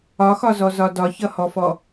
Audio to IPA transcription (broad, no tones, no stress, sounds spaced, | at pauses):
ɒ x ɒ z ɔ z ɒ d ɒ ç ʌ h ɔ f ɔ